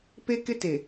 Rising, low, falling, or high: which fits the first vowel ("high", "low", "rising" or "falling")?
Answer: high